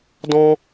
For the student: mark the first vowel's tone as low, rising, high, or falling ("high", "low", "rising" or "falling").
high